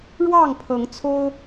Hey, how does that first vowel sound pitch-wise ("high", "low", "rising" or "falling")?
falling